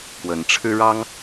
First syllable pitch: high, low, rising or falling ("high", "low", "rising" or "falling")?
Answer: rising